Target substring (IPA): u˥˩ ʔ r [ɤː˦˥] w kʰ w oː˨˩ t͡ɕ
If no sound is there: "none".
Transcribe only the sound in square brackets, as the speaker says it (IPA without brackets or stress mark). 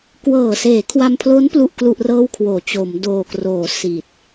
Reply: ɤː˥˩